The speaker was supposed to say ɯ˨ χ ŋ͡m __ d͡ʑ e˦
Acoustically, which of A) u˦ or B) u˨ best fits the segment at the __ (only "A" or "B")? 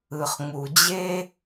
B